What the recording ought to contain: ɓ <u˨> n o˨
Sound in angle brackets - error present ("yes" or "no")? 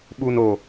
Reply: no